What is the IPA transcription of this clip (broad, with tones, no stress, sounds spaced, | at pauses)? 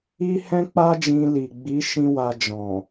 i˦ h ɛ̃˦ k͡p a˦ d͡ʒ ĩ˧ l i˨ ɡ͡b i˨˦ ʃ ĩ˦ w a˧ d͡ʒ ɔ̃˨